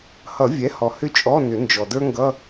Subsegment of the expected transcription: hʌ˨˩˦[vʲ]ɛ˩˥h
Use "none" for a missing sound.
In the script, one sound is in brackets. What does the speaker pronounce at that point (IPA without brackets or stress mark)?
vʲ